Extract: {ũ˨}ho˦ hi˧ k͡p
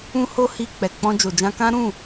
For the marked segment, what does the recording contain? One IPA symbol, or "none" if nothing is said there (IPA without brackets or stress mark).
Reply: ũ˦